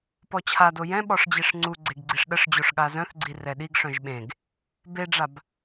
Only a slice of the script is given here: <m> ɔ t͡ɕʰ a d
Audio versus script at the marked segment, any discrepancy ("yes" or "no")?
yes